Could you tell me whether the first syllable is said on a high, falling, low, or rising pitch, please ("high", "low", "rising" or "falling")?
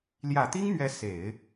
low